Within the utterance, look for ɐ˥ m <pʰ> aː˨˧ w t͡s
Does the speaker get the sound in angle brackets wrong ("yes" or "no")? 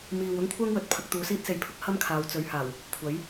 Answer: yes